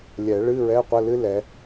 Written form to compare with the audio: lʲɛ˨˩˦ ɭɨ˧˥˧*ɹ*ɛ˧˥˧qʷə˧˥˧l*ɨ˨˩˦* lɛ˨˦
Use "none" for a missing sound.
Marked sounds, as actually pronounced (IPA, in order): ɹ, ɨ˥

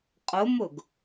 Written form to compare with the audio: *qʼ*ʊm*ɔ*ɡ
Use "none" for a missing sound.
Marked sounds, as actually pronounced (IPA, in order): qʼ, ʊ

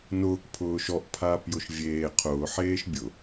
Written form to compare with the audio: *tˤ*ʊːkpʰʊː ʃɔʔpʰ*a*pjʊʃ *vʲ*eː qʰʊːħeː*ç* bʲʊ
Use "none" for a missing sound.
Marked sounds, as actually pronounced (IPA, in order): n, aː, vʲ, ʃ

